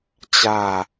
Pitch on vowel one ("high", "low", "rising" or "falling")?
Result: falling